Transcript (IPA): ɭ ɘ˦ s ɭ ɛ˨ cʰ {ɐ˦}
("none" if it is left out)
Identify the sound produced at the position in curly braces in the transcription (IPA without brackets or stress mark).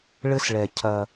ɐ˦